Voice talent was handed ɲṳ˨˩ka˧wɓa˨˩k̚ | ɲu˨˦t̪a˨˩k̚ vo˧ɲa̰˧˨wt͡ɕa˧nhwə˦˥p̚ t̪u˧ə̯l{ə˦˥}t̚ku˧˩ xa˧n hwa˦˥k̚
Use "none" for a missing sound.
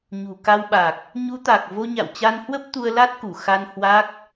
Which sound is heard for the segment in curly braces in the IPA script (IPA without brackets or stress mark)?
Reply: a˦˥